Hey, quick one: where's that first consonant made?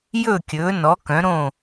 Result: palate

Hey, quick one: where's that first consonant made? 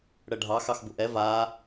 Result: retroflex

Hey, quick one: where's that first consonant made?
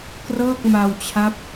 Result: velum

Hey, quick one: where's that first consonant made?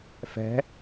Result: lips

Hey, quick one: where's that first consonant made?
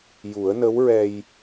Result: palate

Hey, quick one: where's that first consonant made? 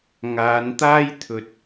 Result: velum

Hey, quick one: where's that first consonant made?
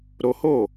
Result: tongue tip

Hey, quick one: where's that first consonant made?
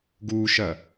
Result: velum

